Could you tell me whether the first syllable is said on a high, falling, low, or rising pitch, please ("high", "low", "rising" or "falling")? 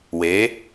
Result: rising